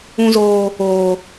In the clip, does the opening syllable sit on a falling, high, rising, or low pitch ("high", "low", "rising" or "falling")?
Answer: high